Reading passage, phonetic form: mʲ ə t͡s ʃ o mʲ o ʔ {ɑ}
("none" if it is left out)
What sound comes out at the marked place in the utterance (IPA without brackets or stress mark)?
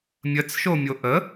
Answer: ə